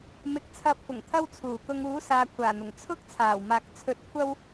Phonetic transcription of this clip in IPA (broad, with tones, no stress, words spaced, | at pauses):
mɪ˧k̚t͡sʰɐ˧p̚fʊ˨˩ŋt̪ʰɐ˥w t͡sʰuː˨˩kʊ˧ŋ uː˨˥saː˨kʷʰaː˨˩n̪ʊ˨˩ŋ t͡sʰʊ˥k̚t͡sʰaː˨˩w maː˨˥k̚ t͡sʰɵ˧t̚kʷʰɐ˥w